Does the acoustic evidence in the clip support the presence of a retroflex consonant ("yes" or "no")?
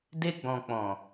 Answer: no